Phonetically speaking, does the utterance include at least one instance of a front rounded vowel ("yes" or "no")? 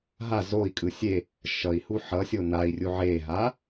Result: no